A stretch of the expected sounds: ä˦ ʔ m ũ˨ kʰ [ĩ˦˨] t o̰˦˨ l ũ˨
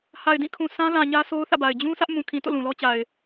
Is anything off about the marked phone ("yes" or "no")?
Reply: yes